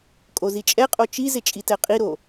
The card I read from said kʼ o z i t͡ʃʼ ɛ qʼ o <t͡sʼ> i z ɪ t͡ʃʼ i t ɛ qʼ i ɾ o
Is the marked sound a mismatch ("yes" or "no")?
yes